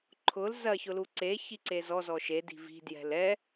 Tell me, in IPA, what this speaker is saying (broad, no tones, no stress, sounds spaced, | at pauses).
ǃʰ ʊ l z ɐ ç ʊ l u ǀ e ç i ǀ e z ɔ z ɔ ʃ e d i̤ v i̤ d j ɛ̤ l ɛ